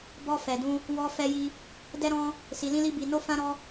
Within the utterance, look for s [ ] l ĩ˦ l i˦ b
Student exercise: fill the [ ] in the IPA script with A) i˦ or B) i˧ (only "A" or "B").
B